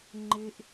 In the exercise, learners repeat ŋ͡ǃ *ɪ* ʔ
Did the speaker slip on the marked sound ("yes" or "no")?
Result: no